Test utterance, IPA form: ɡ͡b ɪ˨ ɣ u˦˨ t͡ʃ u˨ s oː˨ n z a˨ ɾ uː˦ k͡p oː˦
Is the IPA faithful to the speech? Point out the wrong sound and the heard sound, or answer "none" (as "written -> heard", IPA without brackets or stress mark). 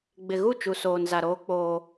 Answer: uː˦ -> oː˦